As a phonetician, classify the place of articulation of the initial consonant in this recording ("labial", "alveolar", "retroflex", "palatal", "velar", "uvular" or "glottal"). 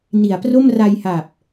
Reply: alveolar